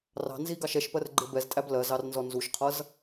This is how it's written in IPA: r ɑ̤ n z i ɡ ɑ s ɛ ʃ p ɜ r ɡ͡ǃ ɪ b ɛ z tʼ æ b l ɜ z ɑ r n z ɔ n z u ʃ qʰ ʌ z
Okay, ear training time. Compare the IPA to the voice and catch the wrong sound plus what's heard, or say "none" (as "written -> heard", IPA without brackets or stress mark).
s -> ʃ